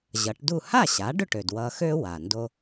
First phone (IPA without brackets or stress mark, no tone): ʑ